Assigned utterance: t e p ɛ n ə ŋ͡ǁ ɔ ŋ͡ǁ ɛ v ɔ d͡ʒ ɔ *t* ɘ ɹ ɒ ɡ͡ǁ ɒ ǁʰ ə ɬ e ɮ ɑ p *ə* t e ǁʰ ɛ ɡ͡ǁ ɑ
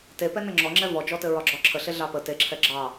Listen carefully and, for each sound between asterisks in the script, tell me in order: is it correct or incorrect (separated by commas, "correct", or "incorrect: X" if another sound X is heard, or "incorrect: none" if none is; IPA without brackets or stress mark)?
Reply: correct, correct